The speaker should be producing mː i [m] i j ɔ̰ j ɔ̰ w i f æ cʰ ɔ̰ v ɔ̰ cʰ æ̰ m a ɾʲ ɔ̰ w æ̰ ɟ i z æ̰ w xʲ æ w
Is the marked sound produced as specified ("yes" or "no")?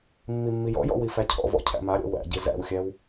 no